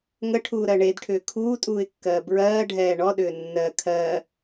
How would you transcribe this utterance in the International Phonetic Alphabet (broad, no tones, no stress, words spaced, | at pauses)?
ŋəʈʰuːɾɜ ɳedʈʰʏː kʰuːtʼuːɪ̯kːɜː bɹɜːɖʱɛː ɳɔɗʏː nːɜ kʰɜː